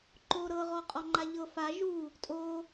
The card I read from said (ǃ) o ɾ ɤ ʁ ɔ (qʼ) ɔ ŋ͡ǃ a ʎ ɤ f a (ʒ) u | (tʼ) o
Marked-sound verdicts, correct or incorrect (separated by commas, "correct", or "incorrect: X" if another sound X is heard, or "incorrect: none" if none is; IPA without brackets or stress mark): correct, correct, correct, correct